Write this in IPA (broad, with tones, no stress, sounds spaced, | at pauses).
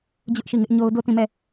d͡ʑ ʊ˦ ʔ ʃ i˦˨ ŋ ɪ˦ ʔ ɲ o˦ ʊ̯ d o˦˨ t ĩ˦˨ m ɛ˦˨